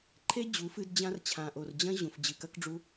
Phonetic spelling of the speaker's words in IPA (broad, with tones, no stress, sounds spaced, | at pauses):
ǃʰ e˦ d͡ʑ u˨˦ f ɨ˧ d d͡ʑ ã˧ r t͡ɕʰ ã˨ ʔ o˨ r d͡ʑ ɐ̃˦ ʑ ũ˨ f d͡ʑ ɨ˨ k ɐ˦ k ɖ͡ʐ u˦